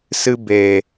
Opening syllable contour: high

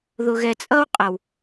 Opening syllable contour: low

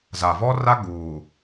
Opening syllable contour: low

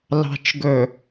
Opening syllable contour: low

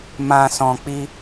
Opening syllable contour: low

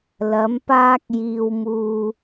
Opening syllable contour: rising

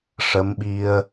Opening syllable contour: rising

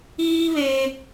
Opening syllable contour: high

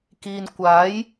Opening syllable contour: low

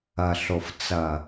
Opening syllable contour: low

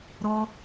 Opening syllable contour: high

